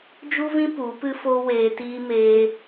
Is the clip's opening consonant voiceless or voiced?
voiced